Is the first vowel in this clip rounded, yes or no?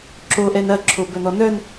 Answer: yes